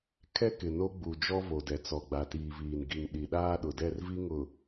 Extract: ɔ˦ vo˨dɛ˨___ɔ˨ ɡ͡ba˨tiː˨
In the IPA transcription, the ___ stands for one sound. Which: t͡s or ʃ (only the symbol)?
t͡s